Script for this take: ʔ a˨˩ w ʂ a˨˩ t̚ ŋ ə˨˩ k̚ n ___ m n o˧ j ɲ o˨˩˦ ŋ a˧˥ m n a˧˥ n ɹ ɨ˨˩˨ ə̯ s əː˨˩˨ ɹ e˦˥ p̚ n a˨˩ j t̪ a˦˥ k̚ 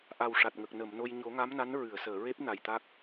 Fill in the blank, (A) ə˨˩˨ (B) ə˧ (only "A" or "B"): A